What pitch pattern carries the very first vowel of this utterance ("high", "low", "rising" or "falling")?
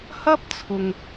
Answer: high